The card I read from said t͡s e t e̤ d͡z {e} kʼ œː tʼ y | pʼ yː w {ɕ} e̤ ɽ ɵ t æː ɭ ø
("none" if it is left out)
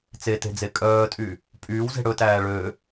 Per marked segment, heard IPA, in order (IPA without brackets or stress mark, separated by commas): e, z